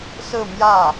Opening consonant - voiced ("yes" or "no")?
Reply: no